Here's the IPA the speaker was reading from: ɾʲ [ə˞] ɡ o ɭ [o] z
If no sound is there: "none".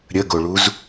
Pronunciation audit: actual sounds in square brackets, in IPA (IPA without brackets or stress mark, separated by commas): ə, u